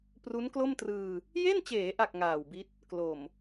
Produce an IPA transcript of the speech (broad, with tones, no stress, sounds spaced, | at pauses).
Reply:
p r u˦˥ n k l o˥˩ m t r ɯː˧ | j e˥˩ n t͡ɕ eː˩˦ ʔ a˨˩ k̚ ŋ aː˨˩ w b i˦˥ t̚ | k l o˨˩ m